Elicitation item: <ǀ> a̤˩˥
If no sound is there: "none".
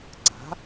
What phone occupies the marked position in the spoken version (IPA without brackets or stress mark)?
ǀ